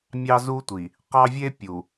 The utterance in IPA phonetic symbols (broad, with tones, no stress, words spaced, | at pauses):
mʲɑ˦zu˦tʷi˨ | qɑ˦ vʲe˦pʲu˨